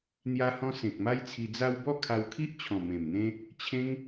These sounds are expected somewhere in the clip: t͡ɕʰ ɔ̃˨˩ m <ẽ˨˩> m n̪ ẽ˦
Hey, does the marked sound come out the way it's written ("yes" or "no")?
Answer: yes